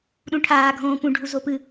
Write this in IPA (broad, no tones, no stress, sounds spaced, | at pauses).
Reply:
ɗ ũ ʈʰ aː ɡʱ õː p ũ ɖʱ u z o p ɨ